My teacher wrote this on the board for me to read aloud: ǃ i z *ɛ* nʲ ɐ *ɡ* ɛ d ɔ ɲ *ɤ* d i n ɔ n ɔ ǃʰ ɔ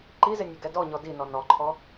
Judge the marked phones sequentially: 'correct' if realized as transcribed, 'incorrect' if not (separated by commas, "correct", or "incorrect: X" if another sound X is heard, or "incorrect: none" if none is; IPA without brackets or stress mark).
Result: incorrect: ɪ, correct, incorrect: ɔ